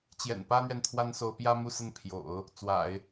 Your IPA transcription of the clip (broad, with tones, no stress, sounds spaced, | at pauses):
t͡ɕ j ɛ̰˨˩ n p ä˥ n̪ ɥ ɛ˨ n t̪ʰ w a˥ n s o˧˥ ʊ̯ p j ä˥ m u˥˧ s ə˥˩ n pʰ j o̰˨˩˦ ʊ̯ | t͡s w a̰˨˩˦ ɪ̯